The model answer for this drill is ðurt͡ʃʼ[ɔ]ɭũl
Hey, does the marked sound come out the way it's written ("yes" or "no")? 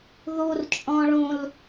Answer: no